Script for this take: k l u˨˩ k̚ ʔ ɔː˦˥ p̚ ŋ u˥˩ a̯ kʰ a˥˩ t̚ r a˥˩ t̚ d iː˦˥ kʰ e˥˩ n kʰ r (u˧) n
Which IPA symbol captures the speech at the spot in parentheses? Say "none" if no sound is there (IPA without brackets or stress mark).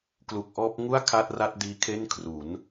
u˩˦